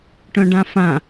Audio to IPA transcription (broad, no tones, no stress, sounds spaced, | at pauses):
ʈ œ̃ ɖ ã f ã